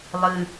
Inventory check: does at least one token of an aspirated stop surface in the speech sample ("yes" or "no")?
no